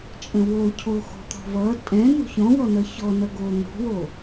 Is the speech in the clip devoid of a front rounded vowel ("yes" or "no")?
yes